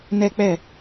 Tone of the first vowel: high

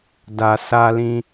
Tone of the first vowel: low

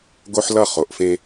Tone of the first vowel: high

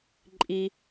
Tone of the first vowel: high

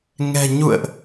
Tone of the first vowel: low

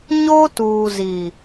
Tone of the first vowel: high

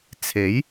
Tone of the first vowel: rising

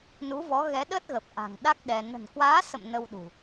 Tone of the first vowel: rising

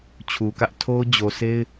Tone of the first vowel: low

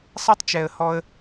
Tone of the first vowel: high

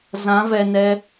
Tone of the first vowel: rising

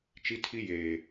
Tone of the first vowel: high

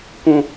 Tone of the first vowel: high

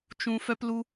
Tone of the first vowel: high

